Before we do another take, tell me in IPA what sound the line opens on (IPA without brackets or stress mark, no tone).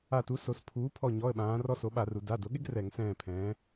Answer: a